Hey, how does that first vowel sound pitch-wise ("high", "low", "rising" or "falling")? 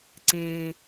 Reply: low